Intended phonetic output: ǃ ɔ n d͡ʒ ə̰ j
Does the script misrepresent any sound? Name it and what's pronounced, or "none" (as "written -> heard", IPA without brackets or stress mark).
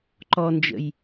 none